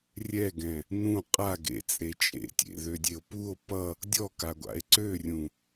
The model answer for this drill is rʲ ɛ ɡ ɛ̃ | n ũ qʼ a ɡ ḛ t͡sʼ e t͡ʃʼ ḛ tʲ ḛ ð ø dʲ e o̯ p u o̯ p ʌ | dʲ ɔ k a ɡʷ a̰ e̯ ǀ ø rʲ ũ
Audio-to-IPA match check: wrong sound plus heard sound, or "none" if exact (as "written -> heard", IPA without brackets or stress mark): none